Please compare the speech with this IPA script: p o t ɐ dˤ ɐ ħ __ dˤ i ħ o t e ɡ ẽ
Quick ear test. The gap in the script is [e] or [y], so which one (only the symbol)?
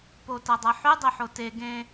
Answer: y